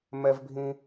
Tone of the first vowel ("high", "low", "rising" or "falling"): high